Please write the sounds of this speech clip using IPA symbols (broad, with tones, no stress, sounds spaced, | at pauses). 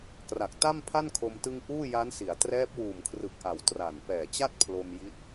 k r a˨˩ k̚ t a˥˩ m pʰ a˥˩ n kʰ o˧ m t ɯ˧ ŋ ʔ uː˥˩ j a˦˥ n s i˩˦ a̯ t r ɛː˦˥ p̚ w uː˨˩ m kʰ r ɯ˨˩ k̚ ʔ a˩˦ w t r a˨˩ n p ɛː˨˩ t͡ɕ a˥˩ t̚ pʰ l o˧ m j i˦˥ t̚